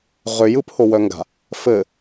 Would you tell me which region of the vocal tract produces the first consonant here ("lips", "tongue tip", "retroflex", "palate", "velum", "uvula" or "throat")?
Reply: uvula